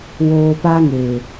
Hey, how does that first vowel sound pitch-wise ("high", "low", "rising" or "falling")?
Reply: low